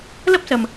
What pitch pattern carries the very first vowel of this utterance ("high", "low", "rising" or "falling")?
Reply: high